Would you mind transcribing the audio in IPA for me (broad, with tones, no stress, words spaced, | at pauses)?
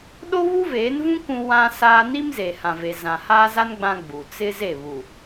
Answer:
ɗo˦βu˦veː˨˦nvũ˦ kʷũ˦ wã˦saː˦ ni˦mze˨hã˨ve˨ zã˨haː˦za˦n ɡ͡bã˦ɡ͡bu˨ t͡sɪ˦ze˦˨βu˨